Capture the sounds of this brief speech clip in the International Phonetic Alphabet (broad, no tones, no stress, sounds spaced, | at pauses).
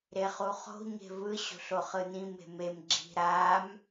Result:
ɾ e χ u χ o̤ ɲ e̤ v ɯ ɕ o̤ ɬ o χ ɯ n ĩ m e̤ m e m ɡ͡ǁ i̤ ɾ a m